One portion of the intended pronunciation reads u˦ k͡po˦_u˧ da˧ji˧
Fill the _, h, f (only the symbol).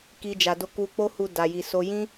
h